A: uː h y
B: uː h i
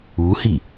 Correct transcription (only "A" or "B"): B